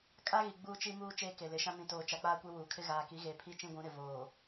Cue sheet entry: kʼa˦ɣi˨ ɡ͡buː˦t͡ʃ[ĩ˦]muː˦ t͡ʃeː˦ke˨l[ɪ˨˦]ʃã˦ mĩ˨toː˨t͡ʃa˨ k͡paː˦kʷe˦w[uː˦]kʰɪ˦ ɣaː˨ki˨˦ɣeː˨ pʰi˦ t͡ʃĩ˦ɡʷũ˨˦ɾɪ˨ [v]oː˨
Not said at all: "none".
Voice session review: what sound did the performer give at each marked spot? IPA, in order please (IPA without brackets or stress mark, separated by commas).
i˦, ɪ˨˦, uː˨, v